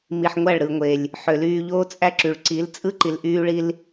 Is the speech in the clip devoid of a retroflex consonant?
no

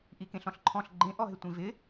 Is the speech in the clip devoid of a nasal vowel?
no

